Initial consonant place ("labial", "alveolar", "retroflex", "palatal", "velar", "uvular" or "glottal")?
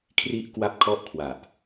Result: velar